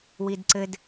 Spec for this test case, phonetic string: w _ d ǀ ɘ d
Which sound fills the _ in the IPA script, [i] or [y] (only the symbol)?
i